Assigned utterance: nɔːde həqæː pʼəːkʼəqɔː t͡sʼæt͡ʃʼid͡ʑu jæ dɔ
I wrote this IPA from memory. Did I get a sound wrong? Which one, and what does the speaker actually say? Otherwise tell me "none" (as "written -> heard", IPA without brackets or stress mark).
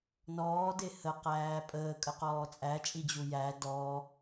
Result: none